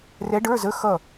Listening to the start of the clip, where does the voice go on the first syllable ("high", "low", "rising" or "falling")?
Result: rising